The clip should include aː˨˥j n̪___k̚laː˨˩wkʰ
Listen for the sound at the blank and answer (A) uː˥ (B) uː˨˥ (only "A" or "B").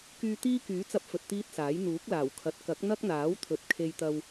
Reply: B